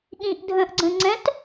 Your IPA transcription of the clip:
ɠĩʔdʱə̃ːʔɡ͡ǀə̃ ŋ͡ǀɛ̃t

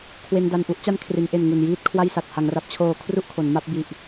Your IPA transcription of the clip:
kʰwe˧nda˧nʔu˦˥ʔ t͡ɕa˦˥nkʰri˩˦nʔe˨˩n ŋu˨˩njiː˥˩t̚kʰwa˥˩jsa˨˩t̚ ha˩˦ŋra˨˩p̚t͡ɕʰoː˨˩ kʰru˥˩ʔkʰo˩˦nma˥˩p̚ bi˨˩ʔ

